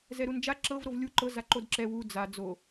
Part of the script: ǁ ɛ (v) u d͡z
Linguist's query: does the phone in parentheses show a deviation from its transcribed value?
yes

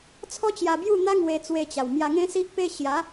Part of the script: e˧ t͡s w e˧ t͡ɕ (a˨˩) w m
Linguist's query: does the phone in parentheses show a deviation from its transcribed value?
no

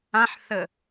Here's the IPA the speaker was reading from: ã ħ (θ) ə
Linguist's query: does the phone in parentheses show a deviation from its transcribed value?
no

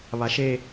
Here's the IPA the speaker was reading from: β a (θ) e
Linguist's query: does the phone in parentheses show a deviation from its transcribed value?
yes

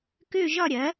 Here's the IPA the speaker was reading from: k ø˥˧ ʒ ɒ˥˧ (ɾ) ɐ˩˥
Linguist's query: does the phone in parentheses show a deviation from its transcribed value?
yes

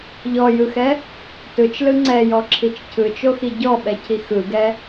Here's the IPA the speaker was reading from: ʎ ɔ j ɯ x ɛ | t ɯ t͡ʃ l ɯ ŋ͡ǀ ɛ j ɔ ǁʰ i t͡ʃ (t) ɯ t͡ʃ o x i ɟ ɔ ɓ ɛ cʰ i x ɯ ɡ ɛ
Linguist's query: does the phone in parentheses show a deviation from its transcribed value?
yes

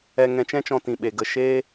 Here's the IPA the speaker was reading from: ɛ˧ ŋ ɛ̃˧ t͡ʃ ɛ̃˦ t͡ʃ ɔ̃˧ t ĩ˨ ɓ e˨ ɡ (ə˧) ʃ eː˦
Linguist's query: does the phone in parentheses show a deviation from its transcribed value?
no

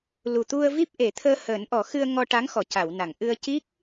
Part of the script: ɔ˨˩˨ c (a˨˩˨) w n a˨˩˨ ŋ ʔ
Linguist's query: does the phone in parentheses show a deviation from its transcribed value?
no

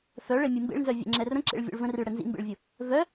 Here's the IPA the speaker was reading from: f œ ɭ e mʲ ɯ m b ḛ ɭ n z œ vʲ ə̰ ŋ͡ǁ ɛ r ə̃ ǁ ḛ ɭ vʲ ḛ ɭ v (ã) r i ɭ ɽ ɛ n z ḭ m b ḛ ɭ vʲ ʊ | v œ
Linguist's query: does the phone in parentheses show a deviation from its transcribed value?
yes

